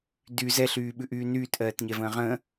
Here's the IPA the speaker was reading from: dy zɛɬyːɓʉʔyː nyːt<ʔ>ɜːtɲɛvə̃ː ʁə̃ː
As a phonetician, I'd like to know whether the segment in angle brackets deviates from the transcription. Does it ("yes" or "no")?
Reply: no